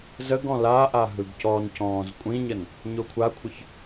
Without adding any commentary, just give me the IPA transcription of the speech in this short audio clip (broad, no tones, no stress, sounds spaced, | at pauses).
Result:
z ə ɡ ɔ̃ l a ʔ a ɦ ɯ ɡ c ɔ n c ɔ̃ː z kʷʼ ĩ ɲ ə n | ɲ o kʷʰ a kʷʰ ə ç